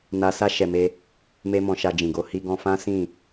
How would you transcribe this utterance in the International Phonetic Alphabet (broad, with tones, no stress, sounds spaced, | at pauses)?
n a˧ s a˦ ʃ ɛ˧ m e˦ | m e˦ m ɔ̃˧ ʃ a˧ d͡ʒ ĩ˨ ɡ o˨˦ h i˧ ɡ ɔ̃˧ f ã˦ s ĩ˦˨